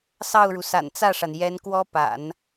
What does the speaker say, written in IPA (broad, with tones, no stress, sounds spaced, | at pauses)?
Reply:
s ɑ˥˩ ʊ̯ ɻ u˩ s a̰˨˩ n t͡s ä˥˩ ʂ a˩ n j ɛ˧˥ n k w ɔ˥ p a̰˨˩˦ n